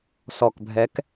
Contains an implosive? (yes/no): no